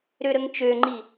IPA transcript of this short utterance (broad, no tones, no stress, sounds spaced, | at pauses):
ɾ ø ɾ ə ŋ t͡ʃ ø ŋ͡ǃ i